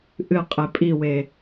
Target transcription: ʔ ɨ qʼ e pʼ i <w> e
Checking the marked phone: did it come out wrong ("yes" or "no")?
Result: no